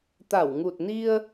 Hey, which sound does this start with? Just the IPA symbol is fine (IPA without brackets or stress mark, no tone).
t̪